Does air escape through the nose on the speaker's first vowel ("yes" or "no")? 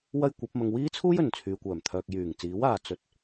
no